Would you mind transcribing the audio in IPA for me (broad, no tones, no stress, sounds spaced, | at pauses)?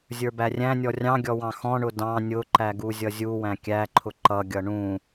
zʲ ə˞ b æ rʲ æ̃ nʲ ɔ rʲ ɑ̃ ɡʲ ɔ w ɑ̃ x ɔ̃ ɳ ʊ d ɑ̃ nʲ ʊ ǃ æ ɡ u zʲ ʌ zʲ u w æ̃ kʲ æ ǃʰ ʊ ǃ ʌ ɡʲ ʌ ɳ ũ